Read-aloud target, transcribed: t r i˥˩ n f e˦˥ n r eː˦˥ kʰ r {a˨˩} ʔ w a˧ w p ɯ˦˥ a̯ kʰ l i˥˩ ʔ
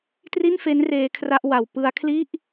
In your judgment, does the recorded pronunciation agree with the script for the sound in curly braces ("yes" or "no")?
no